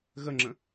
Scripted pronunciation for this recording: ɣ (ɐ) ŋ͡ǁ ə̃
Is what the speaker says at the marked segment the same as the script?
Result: no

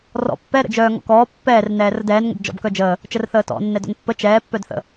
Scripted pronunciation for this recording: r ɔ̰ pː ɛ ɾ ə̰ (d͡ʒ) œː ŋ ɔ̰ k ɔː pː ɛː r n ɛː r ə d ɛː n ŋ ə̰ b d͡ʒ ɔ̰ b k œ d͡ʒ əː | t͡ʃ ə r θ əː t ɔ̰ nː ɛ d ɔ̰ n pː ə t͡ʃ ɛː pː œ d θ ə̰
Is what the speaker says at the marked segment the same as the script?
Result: yes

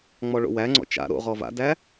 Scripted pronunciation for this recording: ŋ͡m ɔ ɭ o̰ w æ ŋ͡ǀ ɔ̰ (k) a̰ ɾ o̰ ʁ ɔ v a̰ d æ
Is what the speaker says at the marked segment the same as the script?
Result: no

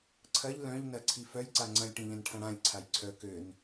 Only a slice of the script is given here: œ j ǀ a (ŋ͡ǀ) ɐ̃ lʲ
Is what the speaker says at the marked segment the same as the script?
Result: yes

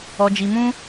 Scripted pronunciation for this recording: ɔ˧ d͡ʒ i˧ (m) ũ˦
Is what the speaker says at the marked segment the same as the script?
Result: yes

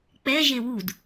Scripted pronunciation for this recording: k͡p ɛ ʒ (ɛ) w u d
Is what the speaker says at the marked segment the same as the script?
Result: no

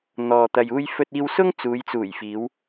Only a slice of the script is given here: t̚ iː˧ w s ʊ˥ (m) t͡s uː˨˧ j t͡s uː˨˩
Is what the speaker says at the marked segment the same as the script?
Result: no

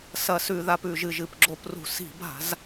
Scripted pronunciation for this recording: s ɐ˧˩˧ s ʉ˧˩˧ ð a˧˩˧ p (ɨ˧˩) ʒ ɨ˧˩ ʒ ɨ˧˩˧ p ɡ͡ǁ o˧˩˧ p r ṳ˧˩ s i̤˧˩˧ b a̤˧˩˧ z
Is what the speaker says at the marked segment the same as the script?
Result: no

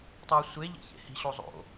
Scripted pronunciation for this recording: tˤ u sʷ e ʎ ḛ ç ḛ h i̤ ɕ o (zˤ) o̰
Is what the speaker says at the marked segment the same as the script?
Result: yes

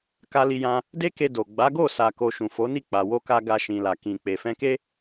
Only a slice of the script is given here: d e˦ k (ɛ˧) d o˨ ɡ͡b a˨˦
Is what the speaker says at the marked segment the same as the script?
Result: no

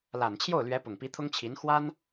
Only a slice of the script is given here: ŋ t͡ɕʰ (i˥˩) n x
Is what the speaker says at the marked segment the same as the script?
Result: no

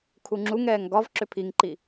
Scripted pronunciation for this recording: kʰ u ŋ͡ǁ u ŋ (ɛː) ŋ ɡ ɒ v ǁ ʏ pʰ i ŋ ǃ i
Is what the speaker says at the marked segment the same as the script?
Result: yes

